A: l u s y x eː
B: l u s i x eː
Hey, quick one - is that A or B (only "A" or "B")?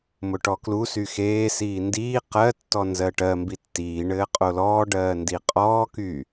A